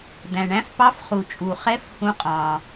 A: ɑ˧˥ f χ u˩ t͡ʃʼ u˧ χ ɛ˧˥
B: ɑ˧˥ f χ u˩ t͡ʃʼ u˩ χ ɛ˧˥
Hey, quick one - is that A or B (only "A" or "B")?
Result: B